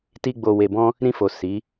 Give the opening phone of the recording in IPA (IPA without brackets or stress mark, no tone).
t